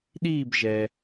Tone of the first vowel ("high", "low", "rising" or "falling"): falling